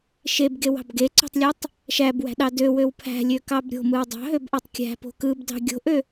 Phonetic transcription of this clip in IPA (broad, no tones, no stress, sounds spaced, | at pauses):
ʃ e b ɡ e w ɑ̤ b ɡ e ǀ o̤ tˤ lʲ e tˤ | ʃ æ b w æ̤ ɗ ɑ d ø w ø w pʰ æ̤ lʲ ø k ɑ b ɾʲ o̤ m ɯ w dˤ ɑ̤ ɦ ø b ʔ ɑ tˤ kʲ æ̤ p o̤ k ɯ b d ɑ̤ ɡʲ o̤ ʔ ø